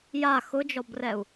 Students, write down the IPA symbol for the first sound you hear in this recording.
j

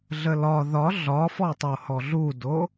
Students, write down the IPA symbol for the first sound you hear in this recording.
ɮ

